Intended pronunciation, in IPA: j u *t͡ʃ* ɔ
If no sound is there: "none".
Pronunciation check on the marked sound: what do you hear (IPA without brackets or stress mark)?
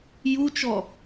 t͡ʃ